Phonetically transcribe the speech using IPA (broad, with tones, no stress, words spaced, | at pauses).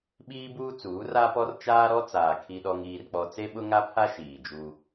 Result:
ɓiː˦buː˦t͡suː˨˦ ra˦pɔ˦r t͡ʃaː˦ɾɔ˦t͡saː˨ kʰi˦ɗɔ˦ŋiː˦rk͡pɔ˦ t͡se˦ɓʊ˦ŋa˦pʰa˦ ʃiː˨d͡ʒu˦